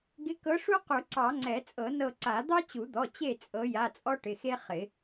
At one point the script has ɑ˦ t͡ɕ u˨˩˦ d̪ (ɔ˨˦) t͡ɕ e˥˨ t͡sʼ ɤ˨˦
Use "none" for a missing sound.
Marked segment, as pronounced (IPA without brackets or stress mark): ɔ˩˧˩